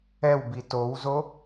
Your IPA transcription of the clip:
ɛwbi towzo

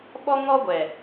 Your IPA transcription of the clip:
ɓɔ˦ ŋɔ˦ɡʷɛ˨

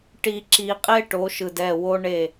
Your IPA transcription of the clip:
ʈi˨ǁi˨ qʼe˦ʈo˨˦ʃɯ˨d ɛ˦˨wo˦ɳe˦˨

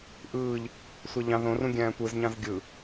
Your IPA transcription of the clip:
ʔɯːʎ | sʷæʎɑ̃ ðõrũ ɡʲæ̃ːtʷɯzɲɑ̃z ɡʲɯ

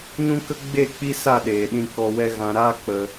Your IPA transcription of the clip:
ɲũ˦kə˦ ɡ͡be˦˨k͡pi˦ sa˦˨ ɗeː˨ ɗĩ˧kɔ˧wɛ˦ ɣã˧ ɾaː˦k͡pə˧

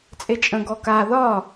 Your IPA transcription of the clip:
t͡sʼet͡ʃʼə̃ ɡɔka ðɒ

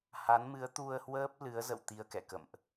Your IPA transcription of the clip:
ha˨˦nmɨ˨˦ə̯ t̪u˧ə̯hwəː˦˥p̚lɨ˨˦ə̯zə̰˧˨w t̪i˧ə̯kɛ̰˧˨kə̰˧˨mʔ

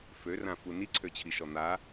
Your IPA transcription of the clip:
førãfu niǀʰøt͡ɕʰiʃɔ n̪a

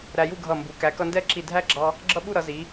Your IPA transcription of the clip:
ɾæ˧ju˥˧ɡʱʌ˧˩mbu˩˧ kæ˩˧kʌ˧ndɛ˥˧ǁi˧˩ dʱæ˥ɡ͡ǁɑ˧ | ɡ͡ǁʌ˥ɓu˥˧ɾʌ˩˧ zi˩˧

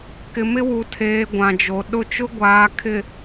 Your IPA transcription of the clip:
kɪ˨mɪ˦wu˨tʰeː˨ ɡʷã˨d͡ʒo˨ ɗʊ˦˨t͡ʃʊ˦ ɡʷaː˨ kʰɪ˨

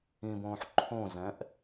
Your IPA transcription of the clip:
ĩbõːħ ǃʰõzɛ̃ʔ

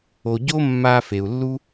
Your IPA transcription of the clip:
o˨ɟo˦ mːa˧fe˨u̯lːu˦

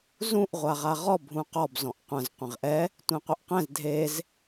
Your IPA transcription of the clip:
zũʔ ʁʷaʁaʁɔ bʱũqɔb zɔ̃ʔqʷɐ̃z qʷɛ̃ʁʔɛ | tʷẽqʷɐʔqɛ̃z dʱez

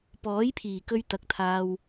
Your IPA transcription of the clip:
pɔː˨˥jpʰiː˨˩kɵ˧ɥt̪ɐ˨˥k̚ t̪ʰaː˧w

